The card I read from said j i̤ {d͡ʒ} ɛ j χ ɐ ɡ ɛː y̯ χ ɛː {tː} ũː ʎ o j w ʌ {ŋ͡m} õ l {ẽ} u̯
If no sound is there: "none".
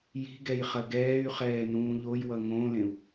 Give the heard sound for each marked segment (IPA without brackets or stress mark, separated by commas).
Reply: ɡ, n, ŋ, ẽ